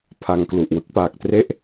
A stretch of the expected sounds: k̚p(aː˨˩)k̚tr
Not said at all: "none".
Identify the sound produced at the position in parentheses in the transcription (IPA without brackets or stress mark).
aː˨˩